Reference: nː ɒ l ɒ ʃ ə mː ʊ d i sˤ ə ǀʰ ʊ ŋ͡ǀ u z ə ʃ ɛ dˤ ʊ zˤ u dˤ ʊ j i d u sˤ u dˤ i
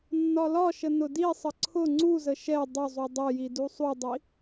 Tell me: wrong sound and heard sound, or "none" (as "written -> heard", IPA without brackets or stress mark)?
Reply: mː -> n